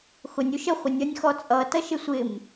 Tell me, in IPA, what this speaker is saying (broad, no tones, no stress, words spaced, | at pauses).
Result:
xʊnʲ uʃə χʷɪnʲʌnʲxɔt͡sʼʌ tʌʃɪsʷɪm